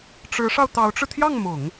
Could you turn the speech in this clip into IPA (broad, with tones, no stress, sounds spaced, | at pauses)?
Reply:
ʈ͡ʂ ɻ̩˧˥ ʂ ɑ˧ ʊ̯ t̪ ɑ˧˥ ʊ̯ ʈ͡ʂ ɻ̩˧ t̪ʰ j ɑ˥˩ ŋ m ʊ˨˩˦ ŋ